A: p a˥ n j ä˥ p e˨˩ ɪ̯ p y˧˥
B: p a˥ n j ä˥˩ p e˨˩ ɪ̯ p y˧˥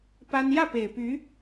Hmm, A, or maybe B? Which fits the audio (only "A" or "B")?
B